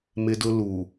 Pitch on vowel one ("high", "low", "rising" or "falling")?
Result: high